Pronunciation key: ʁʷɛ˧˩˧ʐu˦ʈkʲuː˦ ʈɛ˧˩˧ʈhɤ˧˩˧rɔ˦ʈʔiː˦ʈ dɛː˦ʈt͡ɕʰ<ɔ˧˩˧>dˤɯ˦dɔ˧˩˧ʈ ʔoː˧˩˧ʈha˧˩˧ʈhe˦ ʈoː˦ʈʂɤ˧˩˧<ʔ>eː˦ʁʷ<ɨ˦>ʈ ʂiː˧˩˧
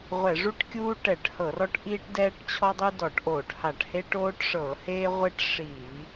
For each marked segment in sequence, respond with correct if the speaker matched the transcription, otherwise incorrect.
incorrect, incorrect, incorrect

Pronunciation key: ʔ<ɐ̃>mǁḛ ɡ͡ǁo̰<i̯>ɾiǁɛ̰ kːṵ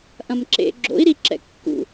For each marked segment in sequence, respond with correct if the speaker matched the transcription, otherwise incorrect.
correct, correct

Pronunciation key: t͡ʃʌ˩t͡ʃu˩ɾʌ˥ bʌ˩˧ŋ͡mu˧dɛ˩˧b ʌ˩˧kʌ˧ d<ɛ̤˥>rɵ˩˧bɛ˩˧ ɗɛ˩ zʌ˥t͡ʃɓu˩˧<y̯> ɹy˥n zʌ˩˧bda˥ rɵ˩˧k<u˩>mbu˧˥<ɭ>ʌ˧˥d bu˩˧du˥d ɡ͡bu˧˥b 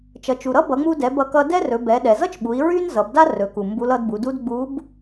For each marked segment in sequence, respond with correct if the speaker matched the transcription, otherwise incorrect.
incorrect, incorrect, correct, incorrect

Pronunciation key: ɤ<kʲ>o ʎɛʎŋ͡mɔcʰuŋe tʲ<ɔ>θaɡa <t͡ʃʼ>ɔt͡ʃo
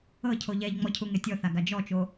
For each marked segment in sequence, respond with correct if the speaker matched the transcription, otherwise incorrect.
incorrect, correct, incorrect

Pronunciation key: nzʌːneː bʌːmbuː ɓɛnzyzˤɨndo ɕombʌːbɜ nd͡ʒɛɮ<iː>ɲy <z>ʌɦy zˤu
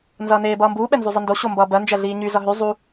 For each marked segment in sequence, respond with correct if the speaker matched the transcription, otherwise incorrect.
correct, correct

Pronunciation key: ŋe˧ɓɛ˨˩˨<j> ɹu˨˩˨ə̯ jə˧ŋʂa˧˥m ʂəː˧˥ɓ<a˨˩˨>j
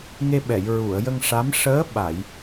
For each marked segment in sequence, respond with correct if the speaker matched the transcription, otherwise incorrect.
correct, correct

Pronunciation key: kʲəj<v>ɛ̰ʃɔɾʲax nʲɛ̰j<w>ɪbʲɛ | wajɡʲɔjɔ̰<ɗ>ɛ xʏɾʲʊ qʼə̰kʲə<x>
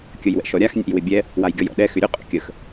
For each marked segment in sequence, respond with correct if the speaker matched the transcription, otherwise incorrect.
incorrect, correct, correct, correct

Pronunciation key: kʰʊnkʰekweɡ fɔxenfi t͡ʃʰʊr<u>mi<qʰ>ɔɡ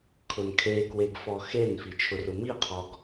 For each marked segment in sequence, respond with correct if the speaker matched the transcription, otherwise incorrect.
incorrect, correct

